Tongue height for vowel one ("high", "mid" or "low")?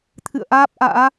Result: high